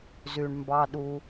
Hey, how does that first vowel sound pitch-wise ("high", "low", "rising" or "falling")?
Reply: low